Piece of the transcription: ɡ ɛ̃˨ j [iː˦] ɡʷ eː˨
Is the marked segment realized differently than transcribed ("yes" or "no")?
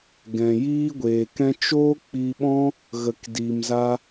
no